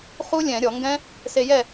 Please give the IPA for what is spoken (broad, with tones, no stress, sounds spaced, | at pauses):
χ u˦˥ lʲ ɛ̃˧˩˧ ɾʲ ɔ˧˩˧ ŋ ɡ ɛ̃˦˥ | s e˧ j ɛ˥˨